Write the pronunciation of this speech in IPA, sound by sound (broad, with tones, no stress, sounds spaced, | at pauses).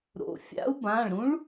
ɾ o̰˩˧˩ fʲ a̰˧˥ u̯ b ã˩˧˩ ɭ ɾ ũ˧˥ ɭ